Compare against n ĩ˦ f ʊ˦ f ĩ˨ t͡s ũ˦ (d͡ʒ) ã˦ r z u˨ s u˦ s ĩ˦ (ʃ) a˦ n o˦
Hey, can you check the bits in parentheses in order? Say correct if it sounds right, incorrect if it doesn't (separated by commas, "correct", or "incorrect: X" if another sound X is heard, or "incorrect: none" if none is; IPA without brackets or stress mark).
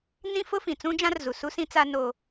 correct, incorrect: t͡s